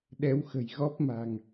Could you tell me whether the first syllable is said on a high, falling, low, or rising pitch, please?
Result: rising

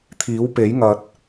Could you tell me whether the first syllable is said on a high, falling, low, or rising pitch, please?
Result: rising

